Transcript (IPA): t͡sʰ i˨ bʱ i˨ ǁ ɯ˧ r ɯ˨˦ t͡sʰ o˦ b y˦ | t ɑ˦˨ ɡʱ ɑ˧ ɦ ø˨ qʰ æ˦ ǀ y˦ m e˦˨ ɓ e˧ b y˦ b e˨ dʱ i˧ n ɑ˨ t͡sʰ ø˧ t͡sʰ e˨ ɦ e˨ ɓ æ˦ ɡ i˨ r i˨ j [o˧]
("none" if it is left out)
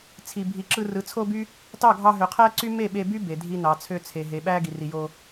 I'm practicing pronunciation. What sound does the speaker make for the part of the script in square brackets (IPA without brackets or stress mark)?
o˧